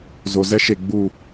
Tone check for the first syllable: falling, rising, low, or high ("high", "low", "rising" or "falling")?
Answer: low